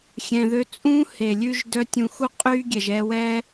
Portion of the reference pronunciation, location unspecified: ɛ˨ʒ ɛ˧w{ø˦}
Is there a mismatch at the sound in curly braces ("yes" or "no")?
yes